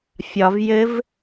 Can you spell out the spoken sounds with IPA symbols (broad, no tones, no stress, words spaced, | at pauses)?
fʲɒv jɘv